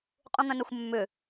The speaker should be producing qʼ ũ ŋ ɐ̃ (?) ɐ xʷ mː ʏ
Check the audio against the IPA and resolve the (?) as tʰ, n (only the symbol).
n